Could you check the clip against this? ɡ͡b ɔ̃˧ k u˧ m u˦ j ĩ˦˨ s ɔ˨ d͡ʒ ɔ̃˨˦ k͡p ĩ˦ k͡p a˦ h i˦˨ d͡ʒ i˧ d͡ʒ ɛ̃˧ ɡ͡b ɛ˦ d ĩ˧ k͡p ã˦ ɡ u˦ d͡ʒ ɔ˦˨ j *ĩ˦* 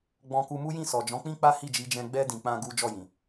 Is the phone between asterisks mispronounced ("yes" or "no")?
yes